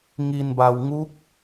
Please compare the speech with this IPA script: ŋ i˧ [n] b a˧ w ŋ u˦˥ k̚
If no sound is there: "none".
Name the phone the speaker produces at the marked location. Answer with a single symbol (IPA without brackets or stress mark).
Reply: n